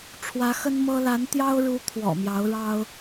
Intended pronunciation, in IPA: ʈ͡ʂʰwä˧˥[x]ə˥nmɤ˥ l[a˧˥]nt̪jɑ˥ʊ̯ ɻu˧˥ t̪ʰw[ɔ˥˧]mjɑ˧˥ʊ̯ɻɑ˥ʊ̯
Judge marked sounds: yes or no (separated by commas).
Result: yes, yes, no